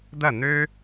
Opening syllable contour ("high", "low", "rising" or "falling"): falling